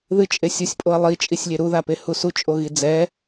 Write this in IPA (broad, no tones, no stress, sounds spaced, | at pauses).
ð ɨ t͡ʃʼ e sʲ u sʲ pʼ o ɐ̯ lˠ i t͡ʃʼ i sʲ lʲ e ɾ u ð a p e h u s u t͡ʃʼ o ɣ i d͡z ɛ